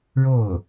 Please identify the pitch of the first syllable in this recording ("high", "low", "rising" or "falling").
falling